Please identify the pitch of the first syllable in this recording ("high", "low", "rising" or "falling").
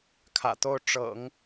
low